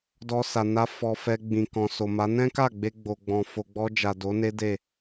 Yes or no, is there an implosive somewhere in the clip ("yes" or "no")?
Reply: no